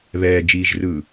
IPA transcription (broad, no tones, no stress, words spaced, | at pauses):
βɛːd͡ʒiːʒrɯː